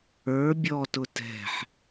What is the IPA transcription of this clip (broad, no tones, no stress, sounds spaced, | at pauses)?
ə˞ bʲ ɔ t ʊ t ɛ̤ ħ